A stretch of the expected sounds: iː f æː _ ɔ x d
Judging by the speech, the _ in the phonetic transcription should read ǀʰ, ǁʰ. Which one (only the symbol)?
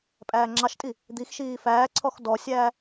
ǀʰ